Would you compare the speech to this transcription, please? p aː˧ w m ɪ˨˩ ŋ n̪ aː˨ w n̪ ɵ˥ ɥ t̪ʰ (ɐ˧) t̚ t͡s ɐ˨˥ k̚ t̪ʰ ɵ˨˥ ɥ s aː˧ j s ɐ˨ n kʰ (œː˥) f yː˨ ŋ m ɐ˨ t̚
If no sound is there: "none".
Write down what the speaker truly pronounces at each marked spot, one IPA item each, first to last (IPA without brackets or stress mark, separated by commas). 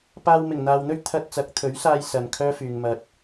ɐ˧, œː˥